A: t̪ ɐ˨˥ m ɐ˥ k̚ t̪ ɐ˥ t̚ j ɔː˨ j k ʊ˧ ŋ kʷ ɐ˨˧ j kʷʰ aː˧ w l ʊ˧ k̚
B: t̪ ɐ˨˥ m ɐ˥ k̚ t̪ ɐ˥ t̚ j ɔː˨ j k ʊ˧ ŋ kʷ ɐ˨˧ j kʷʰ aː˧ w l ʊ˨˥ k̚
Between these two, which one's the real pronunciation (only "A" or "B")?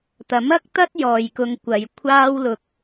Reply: A